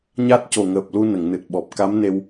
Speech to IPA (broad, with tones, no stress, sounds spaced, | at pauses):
ɲ a˦˥ t̚ c o˨˩ ŋ əː˨˩ p̚ l u˧ n ə˨˩˨ ŋ n ɨ˨˩ t̚ ɓ ɔ˨˩ p̚ k a˧˥ m n e˧ w